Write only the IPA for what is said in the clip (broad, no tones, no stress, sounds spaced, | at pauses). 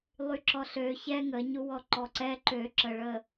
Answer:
lˠ y ǁ ɔ ɬ ø ç ɛ ŋ ə ɲ u w ɔ ǃ ɔ ǀ ɛ ǃ ø ǁ ə ɭ ə